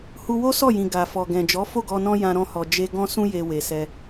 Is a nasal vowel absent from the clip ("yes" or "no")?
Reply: no